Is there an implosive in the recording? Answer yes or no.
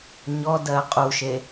no